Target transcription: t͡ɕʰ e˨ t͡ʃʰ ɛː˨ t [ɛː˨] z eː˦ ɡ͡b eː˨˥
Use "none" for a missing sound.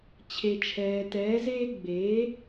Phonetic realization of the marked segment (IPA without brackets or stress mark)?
ɛː˨˥